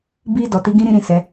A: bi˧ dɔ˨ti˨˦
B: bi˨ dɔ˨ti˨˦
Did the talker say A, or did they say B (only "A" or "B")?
A